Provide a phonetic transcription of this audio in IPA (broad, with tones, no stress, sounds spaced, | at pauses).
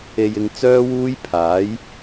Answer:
e˨ j ɪ˨ ŋ t͡s œː˥ w uː˥ j pʰ aː˨˥ j